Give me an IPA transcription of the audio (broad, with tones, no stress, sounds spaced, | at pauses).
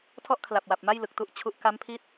tʰ ɔ˥˩ ʔ kʰ l a˨˩ p̚ w a˨˩ p̚ m a˥˩ j l ɯ˨˩ k̚ t u˥˩ ʔ t͡ɕʰ u˦˥ ʔ k a˦˥ m pʰ i˦˥ t̚